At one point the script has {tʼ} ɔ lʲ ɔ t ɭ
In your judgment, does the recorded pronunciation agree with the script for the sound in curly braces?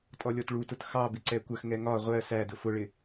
yes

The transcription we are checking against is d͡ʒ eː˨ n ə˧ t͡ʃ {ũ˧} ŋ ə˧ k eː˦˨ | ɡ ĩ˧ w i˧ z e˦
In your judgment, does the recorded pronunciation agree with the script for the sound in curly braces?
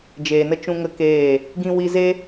yes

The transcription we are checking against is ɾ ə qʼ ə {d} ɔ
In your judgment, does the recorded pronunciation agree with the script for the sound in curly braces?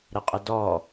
yes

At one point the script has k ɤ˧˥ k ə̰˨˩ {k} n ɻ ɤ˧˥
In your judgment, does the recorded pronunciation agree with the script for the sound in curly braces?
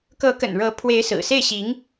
no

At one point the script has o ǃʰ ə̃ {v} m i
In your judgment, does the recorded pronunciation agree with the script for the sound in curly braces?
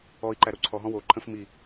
no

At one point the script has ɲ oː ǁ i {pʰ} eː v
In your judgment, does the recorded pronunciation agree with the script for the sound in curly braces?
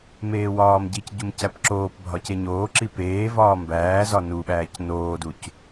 no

